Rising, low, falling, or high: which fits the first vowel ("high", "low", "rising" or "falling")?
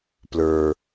low